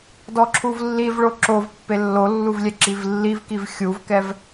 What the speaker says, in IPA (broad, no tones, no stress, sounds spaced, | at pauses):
d ɔ ǁʰ u v lː i v ɭ o ǁ o v pː e lː o lː u v lʲ ɛ ǁ i v lː i v k i v xʲ u v k ɛ v